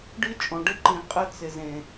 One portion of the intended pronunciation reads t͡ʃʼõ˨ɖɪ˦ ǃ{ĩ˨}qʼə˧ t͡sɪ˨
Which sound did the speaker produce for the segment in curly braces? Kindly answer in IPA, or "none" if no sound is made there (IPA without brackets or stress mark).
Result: ĩ˨